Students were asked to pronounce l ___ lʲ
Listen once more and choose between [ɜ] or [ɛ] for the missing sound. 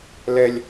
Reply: ɛ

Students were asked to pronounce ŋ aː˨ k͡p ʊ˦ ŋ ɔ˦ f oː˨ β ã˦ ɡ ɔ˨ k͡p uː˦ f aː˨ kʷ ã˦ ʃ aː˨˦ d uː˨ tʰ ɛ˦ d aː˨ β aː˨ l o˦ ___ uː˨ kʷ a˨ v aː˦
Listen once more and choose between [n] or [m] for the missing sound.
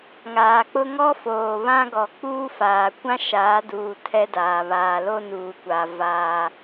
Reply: n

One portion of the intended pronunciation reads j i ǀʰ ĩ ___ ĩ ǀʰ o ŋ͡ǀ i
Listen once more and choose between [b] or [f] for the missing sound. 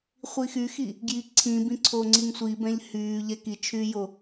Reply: b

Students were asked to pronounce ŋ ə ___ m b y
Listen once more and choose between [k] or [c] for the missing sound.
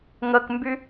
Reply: k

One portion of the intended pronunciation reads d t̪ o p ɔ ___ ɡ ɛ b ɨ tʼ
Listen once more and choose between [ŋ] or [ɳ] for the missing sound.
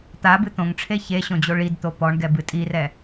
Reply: ɳ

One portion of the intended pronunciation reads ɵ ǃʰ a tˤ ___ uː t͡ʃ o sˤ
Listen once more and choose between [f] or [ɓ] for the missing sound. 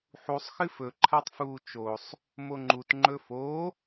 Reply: f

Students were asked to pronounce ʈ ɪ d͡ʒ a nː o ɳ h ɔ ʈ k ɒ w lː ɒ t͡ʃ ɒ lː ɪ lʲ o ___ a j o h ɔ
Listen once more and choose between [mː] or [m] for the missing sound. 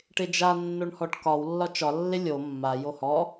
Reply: mː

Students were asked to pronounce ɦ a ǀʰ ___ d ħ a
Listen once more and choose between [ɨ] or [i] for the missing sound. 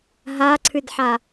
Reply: ɨ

